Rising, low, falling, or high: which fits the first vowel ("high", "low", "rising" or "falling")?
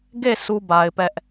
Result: falling